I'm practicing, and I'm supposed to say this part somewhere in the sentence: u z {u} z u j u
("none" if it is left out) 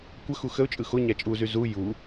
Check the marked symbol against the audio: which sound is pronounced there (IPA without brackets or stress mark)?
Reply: y